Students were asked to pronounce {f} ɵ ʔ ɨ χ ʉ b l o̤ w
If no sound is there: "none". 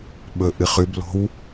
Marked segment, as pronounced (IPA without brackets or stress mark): ɓ